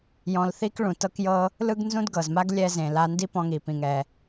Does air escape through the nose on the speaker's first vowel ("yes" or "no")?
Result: yes